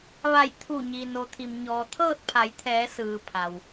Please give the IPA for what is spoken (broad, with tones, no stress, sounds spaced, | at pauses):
ʋ a˧˩ j t̪ʰ u˧˩ ɲ i˩ n o˩ t̪ʰ i˩ m ɲ ɔː˩ t̪ʰ ɤː˥˨ t̚ pʰ a˩˧ j t̪ʰ ɛː˩˧ s ɯː˩ pʰ a˩ w